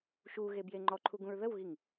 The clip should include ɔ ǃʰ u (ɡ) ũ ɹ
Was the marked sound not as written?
no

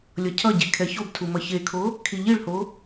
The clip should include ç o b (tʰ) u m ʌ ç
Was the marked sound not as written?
no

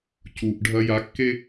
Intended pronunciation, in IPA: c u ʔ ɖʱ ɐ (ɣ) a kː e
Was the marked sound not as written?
yes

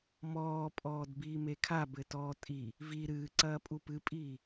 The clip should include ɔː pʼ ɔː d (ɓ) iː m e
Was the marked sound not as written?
yes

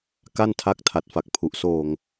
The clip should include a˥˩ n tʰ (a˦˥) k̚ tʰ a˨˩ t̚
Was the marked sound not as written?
no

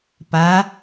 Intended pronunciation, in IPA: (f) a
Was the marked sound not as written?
yes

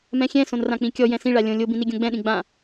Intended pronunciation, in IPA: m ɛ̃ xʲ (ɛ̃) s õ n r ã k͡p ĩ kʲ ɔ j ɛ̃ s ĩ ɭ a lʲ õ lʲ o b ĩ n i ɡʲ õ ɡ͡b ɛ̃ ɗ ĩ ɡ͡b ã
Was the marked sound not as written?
no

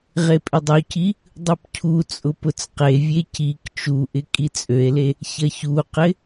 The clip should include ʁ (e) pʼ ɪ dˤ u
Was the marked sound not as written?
no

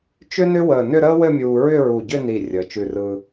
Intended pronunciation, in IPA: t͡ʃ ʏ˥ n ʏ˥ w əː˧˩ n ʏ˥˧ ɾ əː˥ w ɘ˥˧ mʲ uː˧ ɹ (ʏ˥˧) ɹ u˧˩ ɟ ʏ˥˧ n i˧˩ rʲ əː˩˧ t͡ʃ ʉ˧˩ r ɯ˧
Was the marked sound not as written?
no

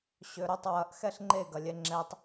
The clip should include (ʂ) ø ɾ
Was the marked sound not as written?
yes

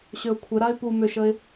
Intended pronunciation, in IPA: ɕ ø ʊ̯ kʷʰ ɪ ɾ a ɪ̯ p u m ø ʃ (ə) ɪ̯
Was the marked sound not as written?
no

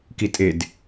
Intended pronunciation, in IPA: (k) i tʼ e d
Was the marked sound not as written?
no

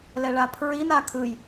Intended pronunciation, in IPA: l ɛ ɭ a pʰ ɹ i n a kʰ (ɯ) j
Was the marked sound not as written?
no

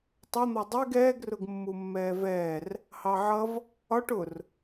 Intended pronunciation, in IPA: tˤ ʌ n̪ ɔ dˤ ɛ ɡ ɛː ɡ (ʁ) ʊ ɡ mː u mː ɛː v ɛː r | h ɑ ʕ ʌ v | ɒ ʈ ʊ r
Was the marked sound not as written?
yes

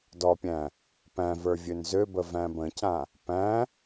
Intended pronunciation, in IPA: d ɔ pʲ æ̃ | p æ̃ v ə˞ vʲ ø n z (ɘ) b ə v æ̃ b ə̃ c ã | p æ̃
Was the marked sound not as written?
yes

